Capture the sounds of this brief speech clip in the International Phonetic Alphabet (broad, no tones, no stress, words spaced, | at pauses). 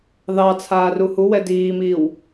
ðɑ t͡sʰaːruhuwɛ diːmiːw